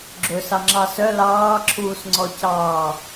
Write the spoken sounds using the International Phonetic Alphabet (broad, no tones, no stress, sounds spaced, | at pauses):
ɡ͡ǁ ɵ s ɑ ŋ͡ǁ ɑ s œ l ɑː ǁʰ uː s ŋ͡ǀ ɔ c ɑː